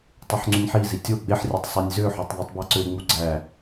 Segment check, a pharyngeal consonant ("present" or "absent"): present